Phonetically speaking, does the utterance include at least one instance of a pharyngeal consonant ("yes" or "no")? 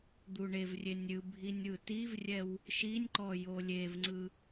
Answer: no